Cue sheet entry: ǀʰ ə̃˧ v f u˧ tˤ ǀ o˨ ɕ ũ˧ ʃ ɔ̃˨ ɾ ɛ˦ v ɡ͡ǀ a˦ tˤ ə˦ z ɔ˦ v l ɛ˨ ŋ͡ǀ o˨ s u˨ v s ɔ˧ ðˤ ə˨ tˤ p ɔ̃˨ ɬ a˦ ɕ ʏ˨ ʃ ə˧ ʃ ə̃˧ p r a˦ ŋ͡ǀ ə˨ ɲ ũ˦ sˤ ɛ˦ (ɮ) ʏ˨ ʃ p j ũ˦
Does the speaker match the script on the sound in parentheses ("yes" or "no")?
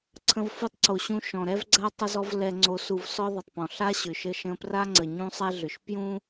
yes